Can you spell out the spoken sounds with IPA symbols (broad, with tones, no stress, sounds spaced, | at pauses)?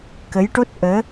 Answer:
k ə˧˥ j ʈ o˦˥ t̚ ʔ əː˧˥